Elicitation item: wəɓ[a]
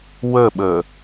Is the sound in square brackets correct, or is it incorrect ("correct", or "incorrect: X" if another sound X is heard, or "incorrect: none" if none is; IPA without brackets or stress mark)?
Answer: incorrect: ə